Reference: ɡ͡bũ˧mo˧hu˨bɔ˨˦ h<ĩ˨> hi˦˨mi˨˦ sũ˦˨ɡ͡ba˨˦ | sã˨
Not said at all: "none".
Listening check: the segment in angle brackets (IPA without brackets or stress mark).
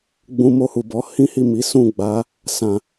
ĩ˦